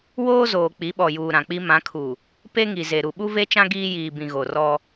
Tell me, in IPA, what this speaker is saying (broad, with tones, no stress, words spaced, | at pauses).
woː˦zoː˨ k͡pi˨˦ɓɔ˨juː˨ ɾã˨k͡pi˦ mã˨˦kʰu˨ | pe˦ŋi˨ze˨ ɾu˨ɓu˦ ve˦t͡ʃã˦ ɡiː˦jiː˨bĩ˨ ɣo˨rɔ˦